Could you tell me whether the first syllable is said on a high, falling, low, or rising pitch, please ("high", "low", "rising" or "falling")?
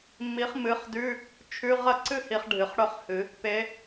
rising